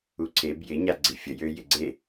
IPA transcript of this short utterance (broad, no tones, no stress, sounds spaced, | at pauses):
u ǀʰ e b j ɪ ɲ a ɡ͡ǀ i fʲ ə j ø j ɪ ɡ͡ǀ e